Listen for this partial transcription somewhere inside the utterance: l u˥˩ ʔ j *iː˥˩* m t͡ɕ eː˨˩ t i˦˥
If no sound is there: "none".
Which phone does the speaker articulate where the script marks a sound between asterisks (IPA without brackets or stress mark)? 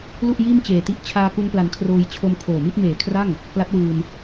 iː˥˩